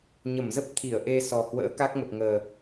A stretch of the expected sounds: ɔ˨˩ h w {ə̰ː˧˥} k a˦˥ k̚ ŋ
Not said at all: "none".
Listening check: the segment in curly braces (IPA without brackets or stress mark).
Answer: ə̰ː˧˥